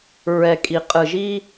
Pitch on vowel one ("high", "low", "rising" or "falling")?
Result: low